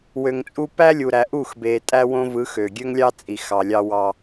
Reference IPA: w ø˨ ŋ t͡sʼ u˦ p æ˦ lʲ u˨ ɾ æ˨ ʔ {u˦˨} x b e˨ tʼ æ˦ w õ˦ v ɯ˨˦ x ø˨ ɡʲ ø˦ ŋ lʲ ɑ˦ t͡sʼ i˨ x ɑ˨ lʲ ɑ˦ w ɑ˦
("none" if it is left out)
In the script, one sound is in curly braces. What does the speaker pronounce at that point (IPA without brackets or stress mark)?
u˦˨